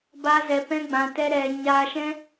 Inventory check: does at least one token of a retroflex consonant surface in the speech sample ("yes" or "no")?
no